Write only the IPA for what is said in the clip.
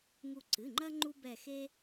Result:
ŋ u˧˩ ǀ ɨ˩˧˩ ŋ͡ǃ ɐ˦ ŋ͡ǃ u˦ b ɛ˧˩ x e˦

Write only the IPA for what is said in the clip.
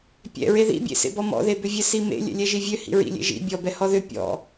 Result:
pʲ ɛ̰ ɹ e ð ḭ bʲ ḛ s ḛ b ɔ m ɔ̰ ð e b ʏ vʲ ɛ s i m ḛ lʲ ɛ̰ lʲ ɛ ʒ i vʲ ø h ḭ ɹ ḭ lʲ ḛ ʒ ḭ bʲ ɔ b ɛ h ɔ ð ʏ pʲ ɔ̰

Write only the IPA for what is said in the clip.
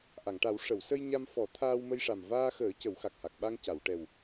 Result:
ʔ a˨˩˨ ŋ ʈ a˨˩˦ w ʂ ə˨˩˨ w s ə˧ j ɲ a˧ m f ɔ˨˩˦ t̪ʰ aː˧ w m ə˧ j ʂ a˨˩ m v aː˧ x əː˨˩˦ c ə˨˩˦ w x a˨˩ k̚ h a˨˩ k̚ ɓ a˧ ŋ c a˨˩˨ w ʈ ɛ˨˩ w

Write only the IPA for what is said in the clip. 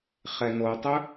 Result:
χ ɛ n o tˤ ɵ

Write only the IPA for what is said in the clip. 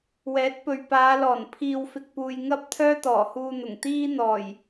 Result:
w ɛː˨˥ t̚ p ɵ˨ ɥ p aː˨˧ l ɔː˨˩ n pʰ iː˨ w f ɪ˨ k̚ p uː˨ j ŋ ɐ˥ p̚ t̪ʰ œː˥ t̪ ɔː˨˩ h uː˧ n̪ ʊ˨˩ ŋ t̪ iː˥ n̪ ɔː˨˩ j

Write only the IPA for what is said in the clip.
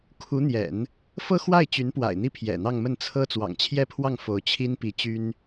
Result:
kʰ u˧˥ n̪ j ɛ̰˨˩˦ n | f ɤ˥ x w a˥˩ ɪ̯ t͡ɕ y˧˥ n p w a̰˨˩ ɪ̯ n̪ i˥ pʰ j ɛ̰˨˩ n̪ ɑ˥˧ ŋ m ə˥˩ n t͡sʰ ɤ˥ t͡s w ɑ̰˨˩ ŋ t͡ɕʰ j ɛ˥˧ pʰ w ɑ˥˩ ŋ f o˧˥ ʊ̯ t͡ɕʰ i˥ n p i˧˥ t͡ɕ y˥ n

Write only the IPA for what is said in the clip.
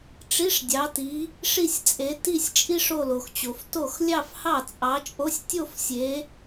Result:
ʈ͡ʂ i˧˥˧ ʂ dʲ ɑ˨˦ t i˨˦ | ʂ i˥˧ sʲ t͡sʼ e˨˦ t i˥˧ sʲ t͡ʃʼ i˥ ʂ o˥˧ l o˨ x t͡ɕ o˨ f t o˥˩ x lʲ ɑ˥˧ f h ɑ˥˩ t͡sʼ ɑ˨˦ t͡ʃʼ o˧˥˧ sʲ tʲ o˥˧ f sʲ e˨˦

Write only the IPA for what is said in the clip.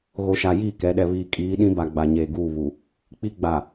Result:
ɣ o˨ ʃ a˨ j iː˦˨ k ɛ˨˦ ɗ ɛ˨ β iː˨ kʼ iː˨˦ ɗ ĩ˦ b a˨ ɡ͡b a˨ ɲ eː˨ ɡ uː˦˨ β u˨ | k͡p i˦ ɡ͡b a˨

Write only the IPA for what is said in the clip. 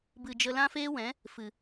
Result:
b ɨ˨ d͡ʒ ə˧ l ã˦ f eː˦ w ɛ̃˨˦ | f ɨ˨

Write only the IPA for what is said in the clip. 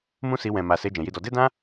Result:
m ũ˦ s i˧ w ɛ̃˨ m a˨ s e˧ d͡ʒ ɛ̃˨ j i˧ d ɔ˧ d e˦ d ã˦

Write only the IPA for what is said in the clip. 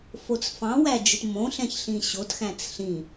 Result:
f o t͡s f ɑ̃ w æ d͡ʒ ɨ t m õ ɬ ɛ̃ ç ɬ ĩ ɕ o t x æ̃ t͡s ɬ ĩ

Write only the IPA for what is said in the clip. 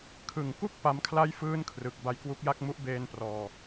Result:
kʰ ɯ˨˩ ŋ k u˥˩ k̚ p a˦˥ m kʰ l a˥˩ j f ɯː˥˩ n kʰ r ɯ˨˩ k̚ b a˧ j k w u˦˥ k̚ j a˥˩ k̚ m u˦˥ ʔ b eː˧ n p r ɔː˨˩

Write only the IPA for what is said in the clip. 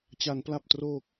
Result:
t͡ɕ a˩˦ n p l a˨˩ p̚ t r oː˨˩ k̚

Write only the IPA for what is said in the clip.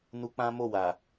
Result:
n u˧ k͡p ã˦ m o˦˨ w a˨

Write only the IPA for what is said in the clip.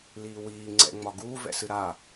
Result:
l iː w iː ŋ͡ǀ ɛ̰ ŋ͡m ɒ ɡ uː v ɛ̰ s ɨ ɾ a

